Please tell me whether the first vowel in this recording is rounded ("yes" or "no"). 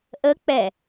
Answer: no